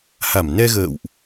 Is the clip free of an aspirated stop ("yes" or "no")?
yes